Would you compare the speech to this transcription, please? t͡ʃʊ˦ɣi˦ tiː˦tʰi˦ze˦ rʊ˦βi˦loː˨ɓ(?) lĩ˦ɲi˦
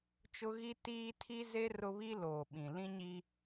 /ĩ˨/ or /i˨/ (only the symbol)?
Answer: ĩ˨